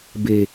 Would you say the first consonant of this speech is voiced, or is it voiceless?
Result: voiced